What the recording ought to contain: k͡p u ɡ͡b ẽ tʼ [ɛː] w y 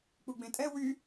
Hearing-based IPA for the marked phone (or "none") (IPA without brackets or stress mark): ɛ